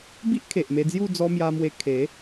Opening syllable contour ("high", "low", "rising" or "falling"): high